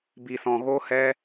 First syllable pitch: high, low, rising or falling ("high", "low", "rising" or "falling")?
low